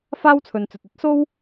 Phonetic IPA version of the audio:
f aː˥ w t͡sʰ ɵ˨ n t͡s ɵ˨ t̚ ɵ˥ t̚ s o˥ w

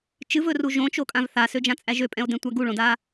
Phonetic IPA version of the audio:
t͡ʃ ɨ v ɵ r u ʒ õ t͡ʃ o kʼ ã v θ a s ø d͡ʒ ã t͡sʼ æ ʒ ø pʼ ɛ̃ o̯ d ɛ̃ tʷ æ ɡ u ɭ õ d a

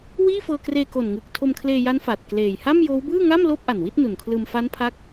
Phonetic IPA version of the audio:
w iː˥˩ f ɤː˧ k r eː˧ k o˨˩ n ŋ ɯ˨˩ k̚ tʰ o˧ m kʰ l eː˧ j a˦˥ n f a˨˩ t̚ k l eː˨˩ j h a˥˩ m j oː˦˥ w b ɯː˥˩ ŋ a˥˩ m l oː˥˩ p̚ ʔ a˨˩ n w i˥˩ t̚ n u˨˩ n kʰ l ɯː˧ m f a˦˥ n pʰ a˦˥ k̚

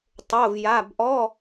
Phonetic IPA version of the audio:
tˤ o˧˥˧ v j a˧˥˧ b ʔ ɔ˧˥˧

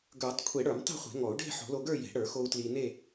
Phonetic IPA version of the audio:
ɡ ə˞˨˩˦ tˤ kʷʰ e˨˩˦ ɽ ə˞˨˩˦ m tˤ e̤˥˧ χʷ e̤˨˩˦ ŋ ɔ˨˩˦ u̯ ɖ e̤˥˧ ħ o̤˨˩˦ l o˧ ɡ ə˞˥˧ j e̤˨˩˦ ɽ ə˞˨˩˦ x o˧ u̯ t l i˧ n e˥˧

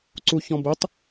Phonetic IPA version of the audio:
ǀ u ç ɔ̃ b ə tˤ

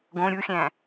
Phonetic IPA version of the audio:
ɡ õ ɾʲ u xʲ æ̃

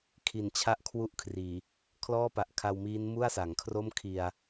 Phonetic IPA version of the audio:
kʰ i˨˩ n t͡ɕʰ a˦˥ ʔ kʰ w u˥˩ ʔ kʰ r iː˨˩ | kʰ l ɔː˥˩ p a˨˩ ʔ kʰ a˧ w m iː˦˥ n m u˥˩ a̯ s a˩˦ ŋ kʰ r o˥˩ m kʰ i˧ a̯

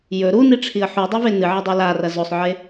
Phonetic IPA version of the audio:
j ɵ ɾ u n i ʈ͡ʂʰ i ə̯ ħ u dˤ u v e n ɨ ʕ ɐ dˤ u l a r ɐ z o sˤ ʕ e

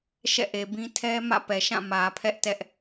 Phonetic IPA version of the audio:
ʃ ɛ̰˦˨ ʔ e˨ b ĩ˦ tʰ ɛ˦ m ä̰˦˨ p ɛ˨ ʃ ã˦˨ m ä˨ pʰ ɛ˦ ʔ t ɛ˦ ʔ

